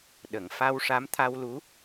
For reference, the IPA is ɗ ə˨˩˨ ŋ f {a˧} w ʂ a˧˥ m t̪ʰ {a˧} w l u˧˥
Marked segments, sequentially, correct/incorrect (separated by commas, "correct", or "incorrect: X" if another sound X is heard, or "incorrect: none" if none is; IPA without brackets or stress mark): correct, correct